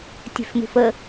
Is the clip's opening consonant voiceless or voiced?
voiceless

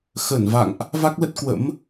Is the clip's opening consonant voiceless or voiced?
voiceless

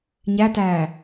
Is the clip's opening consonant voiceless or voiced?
voiced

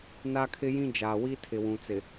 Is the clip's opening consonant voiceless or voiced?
voiced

